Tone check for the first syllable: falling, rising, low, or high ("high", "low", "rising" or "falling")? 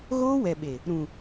high